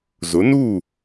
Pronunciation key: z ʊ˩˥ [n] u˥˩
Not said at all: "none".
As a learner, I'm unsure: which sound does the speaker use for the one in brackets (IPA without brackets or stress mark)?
n